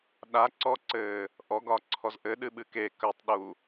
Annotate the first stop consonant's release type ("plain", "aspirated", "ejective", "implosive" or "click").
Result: implosive